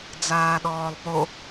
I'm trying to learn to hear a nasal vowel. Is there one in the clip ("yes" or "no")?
no